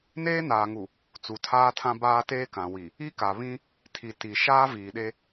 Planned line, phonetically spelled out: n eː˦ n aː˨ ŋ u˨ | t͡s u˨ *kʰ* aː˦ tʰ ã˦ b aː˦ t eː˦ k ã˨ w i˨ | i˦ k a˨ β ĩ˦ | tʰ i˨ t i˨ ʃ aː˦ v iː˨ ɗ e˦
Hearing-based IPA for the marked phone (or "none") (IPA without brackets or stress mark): tʰ